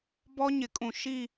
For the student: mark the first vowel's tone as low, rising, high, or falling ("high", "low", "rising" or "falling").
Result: high